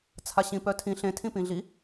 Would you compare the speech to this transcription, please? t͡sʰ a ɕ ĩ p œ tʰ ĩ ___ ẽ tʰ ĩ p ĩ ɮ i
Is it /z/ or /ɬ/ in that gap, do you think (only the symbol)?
ɬ